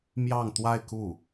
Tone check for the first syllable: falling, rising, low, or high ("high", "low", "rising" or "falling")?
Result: falling